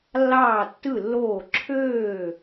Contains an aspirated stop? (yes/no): yes